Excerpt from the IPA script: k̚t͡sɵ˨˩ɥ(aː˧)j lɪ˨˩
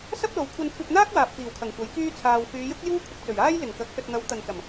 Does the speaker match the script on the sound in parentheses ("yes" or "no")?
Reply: no